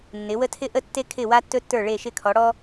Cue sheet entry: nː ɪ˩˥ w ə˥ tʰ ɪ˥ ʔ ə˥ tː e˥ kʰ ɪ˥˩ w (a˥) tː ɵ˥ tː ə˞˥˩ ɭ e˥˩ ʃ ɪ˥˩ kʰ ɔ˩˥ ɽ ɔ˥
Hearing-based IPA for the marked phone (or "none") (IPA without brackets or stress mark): a˥